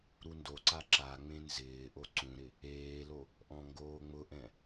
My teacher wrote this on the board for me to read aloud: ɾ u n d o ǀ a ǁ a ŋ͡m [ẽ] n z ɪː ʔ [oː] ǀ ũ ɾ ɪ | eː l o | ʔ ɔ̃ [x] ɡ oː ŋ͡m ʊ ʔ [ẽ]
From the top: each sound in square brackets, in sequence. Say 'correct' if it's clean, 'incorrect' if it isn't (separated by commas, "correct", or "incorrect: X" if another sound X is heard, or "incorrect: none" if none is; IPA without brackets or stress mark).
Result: correct, incorrect: o, incorrect: ŋ, incorrect: ɛ̃